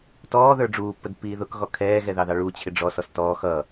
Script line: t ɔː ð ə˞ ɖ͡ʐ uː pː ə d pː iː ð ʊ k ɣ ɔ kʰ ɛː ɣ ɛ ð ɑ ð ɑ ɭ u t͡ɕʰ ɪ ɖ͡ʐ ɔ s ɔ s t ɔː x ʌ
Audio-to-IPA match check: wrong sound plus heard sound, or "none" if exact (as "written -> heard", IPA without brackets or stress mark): none